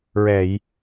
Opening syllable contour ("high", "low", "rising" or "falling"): low